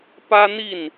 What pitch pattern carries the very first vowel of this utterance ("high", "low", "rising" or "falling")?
high